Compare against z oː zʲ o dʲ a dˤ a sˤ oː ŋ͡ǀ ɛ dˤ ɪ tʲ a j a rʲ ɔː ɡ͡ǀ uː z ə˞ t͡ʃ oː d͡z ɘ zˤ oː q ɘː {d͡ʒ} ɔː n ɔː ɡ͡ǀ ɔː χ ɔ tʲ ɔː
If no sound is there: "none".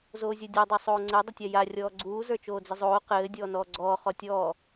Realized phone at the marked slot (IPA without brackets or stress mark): dʲ